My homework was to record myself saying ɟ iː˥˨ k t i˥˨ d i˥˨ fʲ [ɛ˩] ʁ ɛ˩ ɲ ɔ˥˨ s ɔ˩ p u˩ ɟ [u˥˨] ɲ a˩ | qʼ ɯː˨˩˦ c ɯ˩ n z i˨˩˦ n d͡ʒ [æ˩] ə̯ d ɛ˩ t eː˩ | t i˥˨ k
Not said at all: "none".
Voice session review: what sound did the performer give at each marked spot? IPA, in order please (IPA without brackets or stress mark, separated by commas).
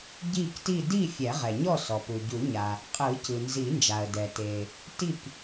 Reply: ɛ˨˩˦, u˨˩˦, a˩